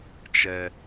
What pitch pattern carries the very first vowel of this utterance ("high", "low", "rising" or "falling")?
low